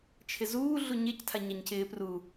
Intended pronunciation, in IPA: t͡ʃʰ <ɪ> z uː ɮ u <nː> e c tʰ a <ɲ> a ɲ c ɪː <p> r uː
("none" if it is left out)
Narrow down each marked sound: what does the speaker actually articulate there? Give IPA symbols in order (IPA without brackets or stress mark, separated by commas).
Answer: ɪ, ɲ, ɲ, p